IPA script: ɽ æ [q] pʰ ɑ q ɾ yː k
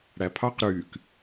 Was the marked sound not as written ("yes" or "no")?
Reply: yes